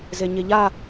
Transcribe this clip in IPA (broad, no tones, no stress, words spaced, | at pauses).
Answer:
zeɲeʎa